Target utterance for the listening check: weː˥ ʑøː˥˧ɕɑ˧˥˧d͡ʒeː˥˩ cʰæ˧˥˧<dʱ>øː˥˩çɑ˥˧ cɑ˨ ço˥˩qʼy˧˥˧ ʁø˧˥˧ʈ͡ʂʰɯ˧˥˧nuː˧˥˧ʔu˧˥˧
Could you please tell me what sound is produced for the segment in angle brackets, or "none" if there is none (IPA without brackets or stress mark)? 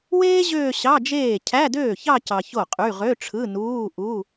d